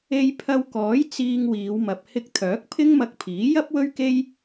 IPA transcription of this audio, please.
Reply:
e˧ j pʰ ɐ˧ w k ɔː˨˥ j t͡s iː˧ ŋ w iː˨˧ w m ɐ˨ p̚ h ɪ˧ k̚ t̪ʰ œː˨˥ k̚ pʰ ɪ˥ ŋ m ɐ˧ k̚ pʰ iː˨˥ j ɐ˥ p̚ w ɵ˥ ɥ k e˥ j

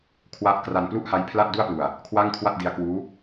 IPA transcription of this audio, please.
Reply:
kʰ w a˦˥ ʔ k r a˧ n p l u˥˩ ʔ h a˦˥ j pʰ l a˥˩ t̚ d u˥˩ a̯ p l u˧ a̯ | kʰ w a˥˩ ŋ kʰ w a˥˩ t̚ d i˦˥ a̯ k w uː˦˥

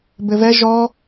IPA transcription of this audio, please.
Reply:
b ɘ v ɛ ʒ ɔ

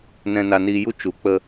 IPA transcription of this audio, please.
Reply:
n ɛ̃˧ n a˧ n iː˧ j u˦ t͡ʃ u˨˦ k͡p ə˧

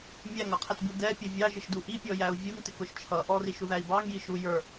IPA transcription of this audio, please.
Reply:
mʲ æ ŋ ʌ qʰ ɛ t b u d ɛ pʲ ʊ vʲ ɑ ʒ ɪ ʃ d u ʔ i pʲ ɔ j æ u̯ vʲ u ŋ t ɪ k ʊ ʃ t͡ʃʰ ʌ ʔ ɔ r i ʃ u ð æ i̯ b ɑ ŋ j i ʃ u j ə˞

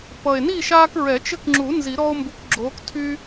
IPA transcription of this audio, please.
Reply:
p ʌ˨˩ e̯ n i˥˨ ʃ aː˦ k ɹ ɛ˨˩˦ t͡ʃ ɘ˦ k ŋ͡ǁ u˨˩˦ n z i˨˩˦ ɾ ɔ˦ o̯ m b u˨˦ k ɡ͡ǁ oː˨˦ k tʰ y˦

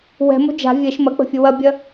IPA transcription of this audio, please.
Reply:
w ɛ̤ m o̤ d͡ʒ a̤ vʲ ɛ ʃ m ɐ k͡p ə̤ fʲ ə w ɐ bʲ ɐ

